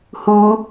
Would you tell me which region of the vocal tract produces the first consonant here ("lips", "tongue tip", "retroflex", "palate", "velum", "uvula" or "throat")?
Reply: throat